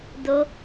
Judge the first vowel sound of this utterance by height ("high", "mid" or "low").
mid